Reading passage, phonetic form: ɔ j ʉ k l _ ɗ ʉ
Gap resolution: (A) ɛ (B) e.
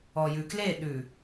B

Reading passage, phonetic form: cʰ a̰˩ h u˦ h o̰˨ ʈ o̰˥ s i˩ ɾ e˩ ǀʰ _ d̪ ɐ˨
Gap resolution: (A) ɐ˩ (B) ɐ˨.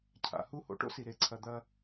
A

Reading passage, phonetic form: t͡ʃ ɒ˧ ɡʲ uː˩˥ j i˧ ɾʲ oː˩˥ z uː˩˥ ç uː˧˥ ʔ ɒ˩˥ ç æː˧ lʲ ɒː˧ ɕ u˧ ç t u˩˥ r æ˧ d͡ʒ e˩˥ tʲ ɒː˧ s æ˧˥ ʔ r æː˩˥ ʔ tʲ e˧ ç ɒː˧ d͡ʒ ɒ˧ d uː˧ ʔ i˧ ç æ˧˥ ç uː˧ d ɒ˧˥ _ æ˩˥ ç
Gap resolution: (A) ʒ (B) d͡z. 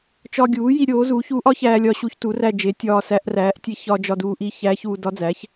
B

